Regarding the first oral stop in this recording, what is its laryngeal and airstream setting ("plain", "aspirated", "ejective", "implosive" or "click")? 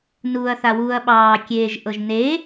implosive